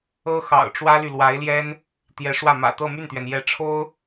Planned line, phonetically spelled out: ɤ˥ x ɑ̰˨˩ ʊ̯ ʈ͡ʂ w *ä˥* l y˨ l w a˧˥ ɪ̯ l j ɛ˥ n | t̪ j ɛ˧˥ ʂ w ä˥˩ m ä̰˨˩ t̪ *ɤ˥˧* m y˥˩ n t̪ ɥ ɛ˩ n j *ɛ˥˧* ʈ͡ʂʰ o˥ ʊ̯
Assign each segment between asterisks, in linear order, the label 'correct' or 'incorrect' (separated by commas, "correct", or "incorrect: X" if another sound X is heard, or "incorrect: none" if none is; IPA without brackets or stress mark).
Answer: correct, correct, incorrect: ɛ˧˥